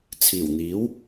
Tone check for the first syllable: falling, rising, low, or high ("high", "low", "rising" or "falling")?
low